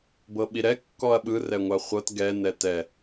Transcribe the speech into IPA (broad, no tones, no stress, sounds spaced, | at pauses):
b ɤ ɓ i ɾ ɛ kː ɔ ɐ̯ ɓ ɯ r ɛ ŋʷ a χʷ ɤ t ɡ ɛ n ɛ t ɛ